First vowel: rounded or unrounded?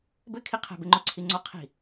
unrounded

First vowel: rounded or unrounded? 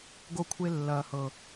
rounded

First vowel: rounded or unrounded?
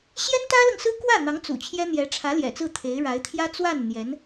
unrounded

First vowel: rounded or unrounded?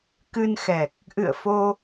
unrounded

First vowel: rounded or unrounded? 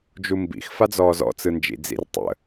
rounded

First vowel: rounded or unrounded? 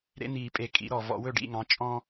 unrounded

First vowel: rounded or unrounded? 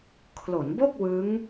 rounded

